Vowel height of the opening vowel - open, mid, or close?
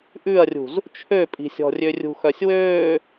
close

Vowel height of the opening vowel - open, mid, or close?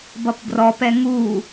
mid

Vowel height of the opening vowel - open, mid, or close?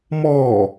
mid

